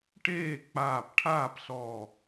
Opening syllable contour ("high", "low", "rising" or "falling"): falling